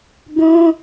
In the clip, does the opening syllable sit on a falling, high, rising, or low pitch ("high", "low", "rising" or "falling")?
high